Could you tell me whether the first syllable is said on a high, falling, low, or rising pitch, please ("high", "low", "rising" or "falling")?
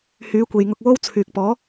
rising